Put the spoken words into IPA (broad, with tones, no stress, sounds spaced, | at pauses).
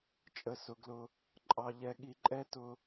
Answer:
t͡ʃʼ ə˧ s ʊ˧ ɡ l ʊ˧ | ǃʼ ɑ˧ ʎ ɛ˧ ɠ i˧ ǃʼ ɛ˦ t ʊ˦